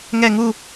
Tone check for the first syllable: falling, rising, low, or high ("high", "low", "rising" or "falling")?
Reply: falling